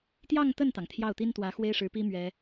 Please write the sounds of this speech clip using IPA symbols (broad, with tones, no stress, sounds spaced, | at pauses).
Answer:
t̪ j ɑ˥˧ ŋ t̪ ə˥˩ n t̪ ɑ˩ ŋ t̪ʰ j ɑ˥˩ ʊ̯ t̪ i˥ n t̪ w ä˧˥ x w e˥ ɪ̯ ʂ ɻ̩˧˥ p i˥ m ɥ ɛ˥